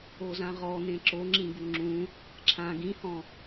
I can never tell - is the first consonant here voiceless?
no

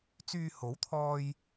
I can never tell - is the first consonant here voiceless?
yes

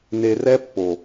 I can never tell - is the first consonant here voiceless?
no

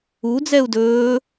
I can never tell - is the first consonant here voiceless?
no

